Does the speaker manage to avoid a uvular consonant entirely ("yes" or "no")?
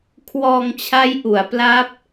yes